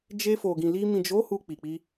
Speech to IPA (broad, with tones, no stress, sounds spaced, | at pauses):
d͡ʒ e˧ f o˨ ɡ ĩ˨ l i˧ m ĩ˨ d͡ʒ o˨˦ h u˧ k͡p i˨ k͡p i˧